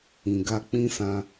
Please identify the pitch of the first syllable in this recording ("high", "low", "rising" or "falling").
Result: low